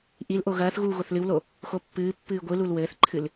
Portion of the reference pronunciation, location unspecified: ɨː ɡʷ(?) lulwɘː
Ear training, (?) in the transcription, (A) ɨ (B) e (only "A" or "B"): A